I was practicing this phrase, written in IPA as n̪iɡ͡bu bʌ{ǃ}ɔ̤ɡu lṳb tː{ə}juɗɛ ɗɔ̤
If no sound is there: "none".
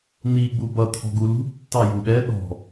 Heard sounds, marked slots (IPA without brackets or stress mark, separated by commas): t̪ʰ, ɑ